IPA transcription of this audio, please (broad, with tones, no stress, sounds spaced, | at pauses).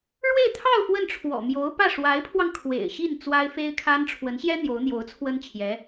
ɻ w e˥˧ ɪ̯ t̪ʰ ɑ˥˧ ʊ̯ f w ə˥˩ n ʈ͡ʂʰ w ɔ̰˨˩ m j o˧˥ ʊ̯ p ä˥˩ ʂ w a˧˥ ɪ̯ pʰ w ɑ˧ ŋ kʰ w ḛ˨˩ ɪ̯ ɕ i˥˩ n t͡s w a˥ ɪ̯ f e˥ ɪ̯ kʰ a˥ n ʈ͡ʂʰ w ə˧˥ n ɕ j ɛ˥ n̪ j o˧˥ ʊ̯ n̪ j o˧˥ ʊ̯ t͡sʰ w ə˥ n t͡ɕʰ j ɛ˧˥